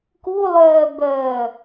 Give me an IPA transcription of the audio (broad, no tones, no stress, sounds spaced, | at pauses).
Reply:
k u lˠ œː b œː